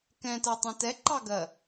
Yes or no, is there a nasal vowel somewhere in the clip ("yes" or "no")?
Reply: yes